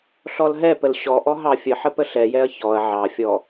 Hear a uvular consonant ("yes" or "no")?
no